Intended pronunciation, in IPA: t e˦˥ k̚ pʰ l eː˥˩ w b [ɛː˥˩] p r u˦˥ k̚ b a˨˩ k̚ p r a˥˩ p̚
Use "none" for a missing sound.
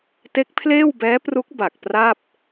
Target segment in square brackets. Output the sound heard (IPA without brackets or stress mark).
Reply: ɛː˦˥